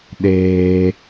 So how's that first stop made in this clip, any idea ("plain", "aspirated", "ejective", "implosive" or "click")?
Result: implosive